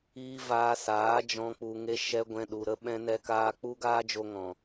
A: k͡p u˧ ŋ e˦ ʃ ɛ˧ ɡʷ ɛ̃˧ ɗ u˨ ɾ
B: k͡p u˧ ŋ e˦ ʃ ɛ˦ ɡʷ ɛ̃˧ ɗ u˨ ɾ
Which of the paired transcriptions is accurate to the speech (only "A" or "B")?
B